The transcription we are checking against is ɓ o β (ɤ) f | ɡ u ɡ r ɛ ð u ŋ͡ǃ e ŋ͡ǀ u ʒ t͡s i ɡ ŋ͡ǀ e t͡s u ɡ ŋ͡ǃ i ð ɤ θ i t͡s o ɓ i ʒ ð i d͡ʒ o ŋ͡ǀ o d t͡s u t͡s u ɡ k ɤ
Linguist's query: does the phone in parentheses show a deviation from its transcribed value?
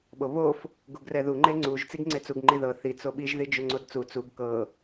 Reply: yes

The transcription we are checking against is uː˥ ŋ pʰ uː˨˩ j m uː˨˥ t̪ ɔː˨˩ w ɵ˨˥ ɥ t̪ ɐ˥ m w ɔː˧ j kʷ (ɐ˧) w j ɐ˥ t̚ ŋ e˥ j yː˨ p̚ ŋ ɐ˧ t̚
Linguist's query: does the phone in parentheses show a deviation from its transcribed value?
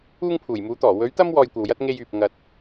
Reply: yes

